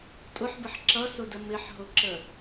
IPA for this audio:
tʼʊħbəħ ǁʌsʊdə mɪħɦʊǁə

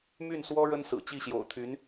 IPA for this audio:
my˥˩nswɔ˥ ɻə˥nsɹ̩˨˩ t͡ɕi˥˩ɕjo̰˨˩ʊ̯t̪ʰy˧˥n

